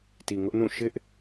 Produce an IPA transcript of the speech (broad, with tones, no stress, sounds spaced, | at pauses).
t i˨ ŋ ʊ˦ ʔ n ũ˦˨ ʃ ɪ˦ ʔ